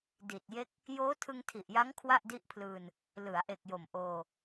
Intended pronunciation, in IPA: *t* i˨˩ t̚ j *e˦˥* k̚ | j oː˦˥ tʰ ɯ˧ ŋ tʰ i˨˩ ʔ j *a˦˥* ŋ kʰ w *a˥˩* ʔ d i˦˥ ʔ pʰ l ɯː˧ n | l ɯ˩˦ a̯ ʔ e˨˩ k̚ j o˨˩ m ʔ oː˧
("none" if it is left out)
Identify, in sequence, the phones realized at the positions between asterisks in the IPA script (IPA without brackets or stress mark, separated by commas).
d, e˦˥, a˦˥, a˥˩